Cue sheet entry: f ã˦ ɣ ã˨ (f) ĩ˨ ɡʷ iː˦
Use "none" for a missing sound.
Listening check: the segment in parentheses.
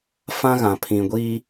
pʰ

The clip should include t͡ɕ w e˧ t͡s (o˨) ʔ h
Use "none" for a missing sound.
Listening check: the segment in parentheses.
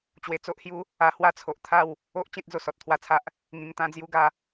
o˦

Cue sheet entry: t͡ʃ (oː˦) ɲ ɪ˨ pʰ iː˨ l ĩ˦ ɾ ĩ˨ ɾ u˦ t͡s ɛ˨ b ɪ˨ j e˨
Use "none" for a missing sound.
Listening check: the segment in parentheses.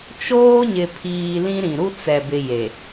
oː˦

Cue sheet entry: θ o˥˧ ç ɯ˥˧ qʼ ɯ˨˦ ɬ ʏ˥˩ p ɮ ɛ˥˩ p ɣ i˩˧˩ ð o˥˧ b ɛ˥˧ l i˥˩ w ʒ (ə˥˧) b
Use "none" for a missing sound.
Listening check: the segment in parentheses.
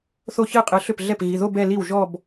ɔ˥˧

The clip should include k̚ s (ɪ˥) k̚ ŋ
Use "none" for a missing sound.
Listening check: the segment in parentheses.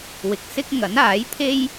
ɪ˥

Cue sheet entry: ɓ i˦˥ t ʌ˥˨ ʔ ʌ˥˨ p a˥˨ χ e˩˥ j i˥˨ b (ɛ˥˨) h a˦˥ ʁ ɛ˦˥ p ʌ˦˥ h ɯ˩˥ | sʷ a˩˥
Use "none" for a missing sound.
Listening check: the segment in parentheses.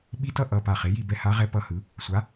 ɛ˥˨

